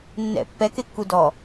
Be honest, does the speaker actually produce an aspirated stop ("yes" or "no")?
no